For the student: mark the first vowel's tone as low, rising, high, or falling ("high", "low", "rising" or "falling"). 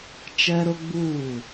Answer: high